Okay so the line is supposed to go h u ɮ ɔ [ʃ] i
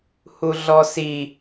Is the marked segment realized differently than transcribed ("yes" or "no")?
yes